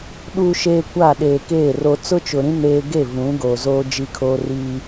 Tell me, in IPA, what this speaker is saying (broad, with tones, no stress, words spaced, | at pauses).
ɗuː˨ʃeː˨ kʷa˦˨ɗeː˨keː˦˨ ro˨t͡sʊ˦t͡ʃʊ˨ɾĩ˦ neː˦ ɡe˦˨ vũ˨˦ ɡoː˨zoː˦ d͡ʒi˦kʰoː˦riː˦